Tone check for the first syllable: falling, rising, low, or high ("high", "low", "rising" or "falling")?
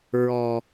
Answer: low